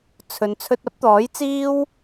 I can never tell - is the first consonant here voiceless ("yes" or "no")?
yes